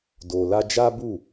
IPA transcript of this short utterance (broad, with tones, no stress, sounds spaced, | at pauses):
d o˨ l a˧ d͡ʒ a˦ b u˦˨